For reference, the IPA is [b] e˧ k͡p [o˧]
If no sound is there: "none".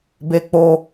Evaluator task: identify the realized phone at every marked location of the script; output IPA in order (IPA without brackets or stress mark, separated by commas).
b, o˧